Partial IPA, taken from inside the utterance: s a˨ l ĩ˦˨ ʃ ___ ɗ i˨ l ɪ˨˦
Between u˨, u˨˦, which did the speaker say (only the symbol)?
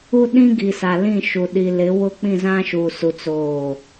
u˨